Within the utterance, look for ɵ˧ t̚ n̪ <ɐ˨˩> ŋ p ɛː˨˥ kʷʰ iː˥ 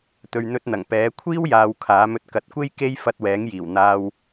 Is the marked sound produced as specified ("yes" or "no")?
yes